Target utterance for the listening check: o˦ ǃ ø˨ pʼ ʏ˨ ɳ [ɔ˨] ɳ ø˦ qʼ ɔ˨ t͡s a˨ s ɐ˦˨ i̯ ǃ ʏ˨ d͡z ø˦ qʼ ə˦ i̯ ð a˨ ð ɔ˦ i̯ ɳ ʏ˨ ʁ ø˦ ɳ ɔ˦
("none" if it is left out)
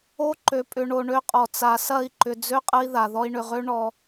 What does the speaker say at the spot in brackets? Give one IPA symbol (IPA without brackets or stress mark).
o˨